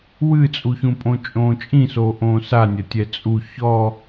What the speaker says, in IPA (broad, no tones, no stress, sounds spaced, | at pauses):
w ɨ t͡sʼ u ç ũ pʼ õ t͡ʃʼ õː t͡ʃʼ ĩ s oː ʔ õː s a nʲ ɐ tʲ ɛ t͡sʼ u ç ɔ